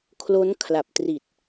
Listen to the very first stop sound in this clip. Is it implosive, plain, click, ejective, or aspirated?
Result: aspirated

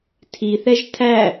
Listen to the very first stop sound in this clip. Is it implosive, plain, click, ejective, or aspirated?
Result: aspirated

